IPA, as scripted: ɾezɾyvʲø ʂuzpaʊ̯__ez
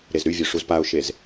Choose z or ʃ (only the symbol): ʃ